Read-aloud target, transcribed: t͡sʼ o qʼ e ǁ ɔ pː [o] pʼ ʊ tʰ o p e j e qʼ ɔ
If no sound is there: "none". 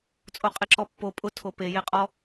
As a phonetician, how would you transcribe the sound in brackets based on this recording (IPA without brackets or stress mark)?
o